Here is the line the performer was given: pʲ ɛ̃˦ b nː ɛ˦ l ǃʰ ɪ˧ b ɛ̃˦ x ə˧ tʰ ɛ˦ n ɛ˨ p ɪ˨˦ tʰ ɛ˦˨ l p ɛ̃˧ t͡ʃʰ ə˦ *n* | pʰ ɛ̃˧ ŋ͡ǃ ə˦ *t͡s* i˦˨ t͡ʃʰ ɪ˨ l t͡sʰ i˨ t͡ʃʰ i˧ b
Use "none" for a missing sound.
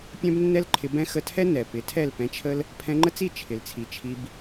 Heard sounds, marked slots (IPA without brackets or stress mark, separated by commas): l, t͡s